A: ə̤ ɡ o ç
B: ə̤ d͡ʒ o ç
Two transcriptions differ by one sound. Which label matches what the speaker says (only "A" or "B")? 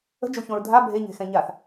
B